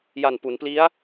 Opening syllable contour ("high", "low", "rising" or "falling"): low